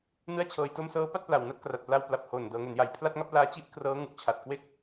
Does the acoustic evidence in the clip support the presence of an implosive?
no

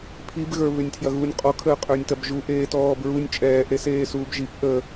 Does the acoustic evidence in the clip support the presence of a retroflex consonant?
no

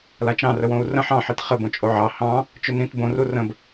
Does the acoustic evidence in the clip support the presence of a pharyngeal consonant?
yes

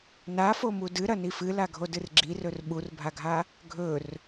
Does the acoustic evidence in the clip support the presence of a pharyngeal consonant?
no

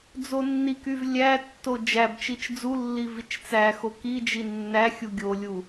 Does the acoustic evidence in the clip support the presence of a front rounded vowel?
yes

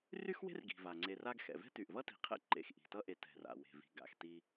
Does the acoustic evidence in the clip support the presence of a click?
yes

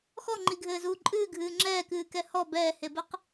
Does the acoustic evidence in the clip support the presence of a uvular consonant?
yes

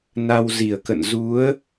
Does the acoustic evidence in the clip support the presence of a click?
no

